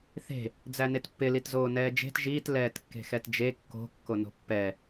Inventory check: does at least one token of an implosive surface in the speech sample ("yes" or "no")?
no